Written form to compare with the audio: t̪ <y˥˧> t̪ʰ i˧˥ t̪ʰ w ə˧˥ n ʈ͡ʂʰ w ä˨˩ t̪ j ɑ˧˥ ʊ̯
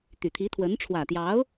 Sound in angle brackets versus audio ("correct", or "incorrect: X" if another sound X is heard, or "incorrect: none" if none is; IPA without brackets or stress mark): incorrect: y˨˩